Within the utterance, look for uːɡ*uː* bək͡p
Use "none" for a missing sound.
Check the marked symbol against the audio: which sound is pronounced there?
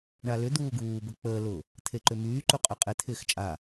uː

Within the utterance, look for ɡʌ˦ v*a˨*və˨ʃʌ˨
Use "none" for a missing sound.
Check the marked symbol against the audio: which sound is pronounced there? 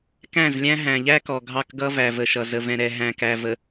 æ˨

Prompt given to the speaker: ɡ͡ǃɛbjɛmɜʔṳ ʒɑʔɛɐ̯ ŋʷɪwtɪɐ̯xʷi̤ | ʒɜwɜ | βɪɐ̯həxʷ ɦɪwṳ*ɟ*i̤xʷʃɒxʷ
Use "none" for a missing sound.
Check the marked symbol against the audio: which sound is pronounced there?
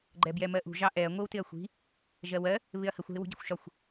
ɟ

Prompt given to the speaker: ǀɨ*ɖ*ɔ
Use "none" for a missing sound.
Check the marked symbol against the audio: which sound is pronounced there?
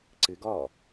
ɡ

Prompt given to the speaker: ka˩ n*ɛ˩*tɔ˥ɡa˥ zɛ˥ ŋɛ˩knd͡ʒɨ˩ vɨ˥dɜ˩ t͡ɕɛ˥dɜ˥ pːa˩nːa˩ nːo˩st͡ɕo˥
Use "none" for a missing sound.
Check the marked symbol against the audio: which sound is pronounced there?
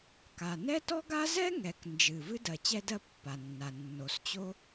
ɛ˥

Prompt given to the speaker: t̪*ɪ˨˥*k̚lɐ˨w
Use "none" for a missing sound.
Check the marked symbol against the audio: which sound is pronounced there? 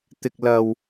ɪ˨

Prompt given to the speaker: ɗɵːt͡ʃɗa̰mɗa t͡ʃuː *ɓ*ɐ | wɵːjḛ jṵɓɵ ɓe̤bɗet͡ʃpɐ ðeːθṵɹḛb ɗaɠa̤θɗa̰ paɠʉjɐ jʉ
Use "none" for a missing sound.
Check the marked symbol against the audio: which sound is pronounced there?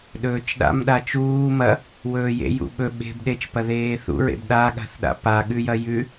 m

